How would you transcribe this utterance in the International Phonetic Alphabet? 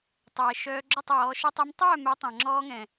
tˤ ɛː˨ ʃ œː˧ ɡ͡ǁ œ˦˨ tˤ w ɔː˨˦ ʃ ɛ˧ tˤ a˧ m tˤ œː˦˨ m ɛ˨˦ tˤ ã˨ ŋ͡ǁ ɔː˧ ŋ ɛ̃˨

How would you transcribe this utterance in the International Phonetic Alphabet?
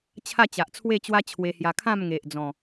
t͡ɕʰ a˥˧ t͡ɕ a˨ ʔ t͡sʰ w e˥˧ t͡ɕ w a˦ t͡ɕʰ w e˧ h j a˧ kʰ ã˥˧ m ŋ e˨ ʔ d͡z ɔ̃˨˩

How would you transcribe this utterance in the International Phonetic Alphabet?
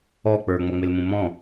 ɔ k͡p ə˞ ŋ͡m ʌ ŋ͡m ɪ l m ũ m ɔ̃

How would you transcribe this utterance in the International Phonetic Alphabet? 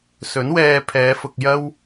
s ɵ˨˥ n w ɛː˧ pʰ ɛː˨˧ f ʊ˨ k̚ j ɐ˥ w

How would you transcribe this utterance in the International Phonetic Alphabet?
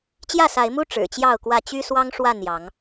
t͡ɕ j ä˥˨ s a˨˦ ɪ̯ m u˦ ʈ͡ʂ ɻ̩˨˩ t͡ɕ j ɑ˥˨ ʊ̯ k w ä˥˨ t͡ɕ y˦ s w ɑ˦ ŋ ʂ w a˥˨ n j ɑ˨˦ ŋ

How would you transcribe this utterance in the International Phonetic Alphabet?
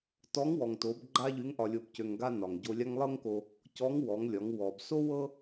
t ɔ˧˥ ŋ w ɔ˩ ŋ t o˩˧ b ɡ͡ǃ a˥ ʎ y˧˥ ŋ ʔ ɒ˧ lʲ o˧ b c ø˧ ŋ ɡ a˥ n ɒ˩ ŋ ɟ o˧ lʲ a˥ ŋ lˠ ɤ˥ ŋ k o˧ | c ɔ˧˥ ŋ w ɔ˩˧ ŋ lʲ ɒ˩˧ ŋ w ɔ˩ b s o˥ w ɤ˥

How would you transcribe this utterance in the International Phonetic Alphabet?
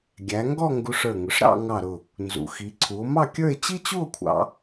ɡʲ æ˩˧ ŋ ɡ ɔ˥˧ ŋ ɡ u˧ ʂ ə˞˧˩ ŋ ʊ˩˧ ʂ ɾ ɑ̰˥˧ ŋ ɑ˧˩ ɾ ʊ˧˩ | n z ṵ˩˧ x i˩˧ ǀʰ u˩˧ o̯ m ɑ˥˧ kʲ ə˞˥˧ e̯ t͡ɕ i˥ t͡ɕ u˥˧ o̯ kʷʰ ɑ̰˩˧

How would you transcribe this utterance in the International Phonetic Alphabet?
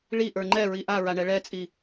ɭ i ʔ ə˞ ŋ͡ǃ ɛ ɹ i ʔ a ɹ a ɳ ɛ ɭ ɛ t͡sʼ i

